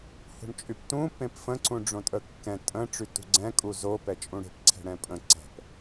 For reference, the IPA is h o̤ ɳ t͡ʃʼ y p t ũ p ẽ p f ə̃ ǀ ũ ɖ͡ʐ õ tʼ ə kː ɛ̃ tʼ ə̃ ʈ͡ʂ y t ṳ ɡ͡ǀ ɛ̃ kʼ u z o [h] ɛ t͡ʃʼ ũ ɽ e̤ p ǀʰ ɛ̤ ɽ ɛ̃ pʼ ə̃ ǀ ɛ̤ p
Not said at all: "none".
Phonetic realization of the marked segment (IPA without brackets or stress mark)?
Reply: p